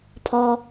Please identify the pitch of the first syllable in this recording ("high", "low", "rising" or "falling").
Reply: low